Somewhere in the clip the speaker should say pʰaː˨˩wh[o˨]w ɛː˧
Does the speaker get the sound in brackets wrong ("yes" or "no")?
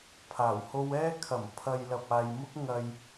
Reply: yes